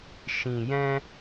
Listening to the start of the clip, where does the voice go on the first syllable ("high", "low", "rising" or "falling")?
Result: low